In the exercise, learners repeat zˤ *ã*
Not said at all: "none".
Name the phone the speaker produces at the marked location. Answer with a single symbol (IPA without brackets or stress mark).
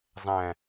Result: æ̃